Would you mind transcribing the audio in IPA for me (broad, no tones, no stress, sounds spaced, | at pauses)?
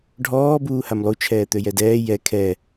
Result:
ɖʱ ɔː b uː h a m lˠ u t͡ʃʰ ɛː t̪ ø j ɛ d ɛː j ɛ kʰ ɛ